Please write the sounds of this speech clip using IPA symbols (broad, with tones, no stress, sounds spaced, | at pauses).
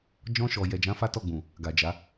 d͡ʒ ɔ̃˧ ʃ ɔ˨ j ɛ˨ d͡ʒ ã˨˦ f a˦ t ɔ˦˨ ɡ͡b ũ˨ | ɡ a˨ d͡ʒ a˨˦